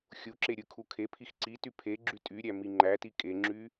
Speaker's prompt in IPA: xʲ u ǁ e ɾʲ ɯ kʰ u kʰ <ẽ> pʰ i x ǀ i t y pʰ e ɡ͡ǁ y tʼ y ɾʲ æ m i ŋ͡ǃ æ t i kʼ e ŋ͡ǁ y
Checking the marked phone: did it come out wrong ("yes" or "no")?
yes